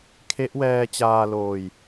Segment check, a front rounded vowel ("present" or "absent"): absent